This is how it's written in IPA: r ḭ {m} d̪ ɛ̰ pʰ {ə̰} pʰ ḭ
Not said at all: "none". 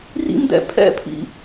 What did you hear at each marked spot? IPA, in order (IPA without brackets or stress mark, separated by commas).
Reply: m, ɛ̰